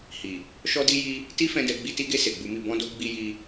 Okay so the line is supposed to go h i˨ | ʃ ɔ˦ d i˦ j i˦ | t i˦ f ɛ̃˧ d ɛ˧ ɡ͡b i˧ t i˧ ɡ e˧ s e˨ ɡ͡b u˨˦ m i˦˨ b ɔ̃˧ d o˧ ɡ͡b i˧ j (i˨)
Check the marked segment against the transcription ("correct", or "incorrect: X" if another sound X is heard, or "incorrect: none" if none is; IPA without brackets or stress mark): incorrect: i˧